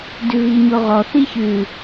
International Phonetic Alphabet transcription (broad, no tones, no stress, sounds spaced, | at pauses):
d ʉ v i ɲ o ʁ ɔ θ i ç ʉ